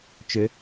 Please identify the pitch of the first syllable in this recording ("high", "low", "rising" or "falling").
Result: rising